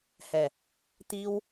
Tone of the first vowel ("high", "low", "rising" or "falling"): low